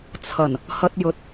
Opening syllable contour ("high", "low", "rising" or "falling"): low